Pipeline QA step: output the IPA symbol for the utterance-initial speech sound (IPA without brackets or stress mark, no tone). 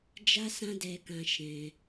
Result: d͡ʒ